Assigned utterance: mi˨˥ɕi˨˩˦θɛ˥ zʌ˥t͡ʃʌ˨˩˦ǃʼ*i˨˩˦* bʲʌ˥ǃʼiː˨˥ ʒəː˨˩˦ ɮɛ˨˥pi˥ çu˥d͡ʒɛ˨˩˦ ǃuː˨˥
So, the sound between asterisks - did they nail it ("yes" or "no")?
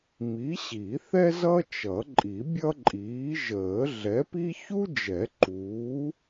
yes